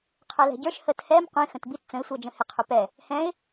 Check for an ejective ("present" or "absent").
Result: absent